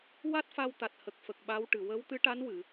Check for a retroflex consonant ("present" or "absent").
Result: present